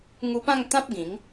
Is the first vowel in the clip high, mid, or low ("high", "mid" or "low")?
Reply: high